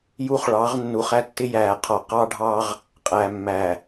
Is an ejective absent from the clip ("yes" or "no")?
no